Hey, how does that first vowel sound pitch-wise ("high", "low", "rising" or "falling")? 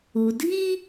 low